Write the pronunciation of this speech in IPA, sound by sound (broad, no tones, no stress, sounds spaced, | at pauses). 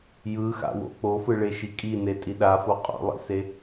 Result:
j ɯ x a̰ w o̰ k͡p o f ɯ ɭ e ʃ i kʼ i n e tʼ i ɗ a f o qʼ o̰ lˠ ḛ s e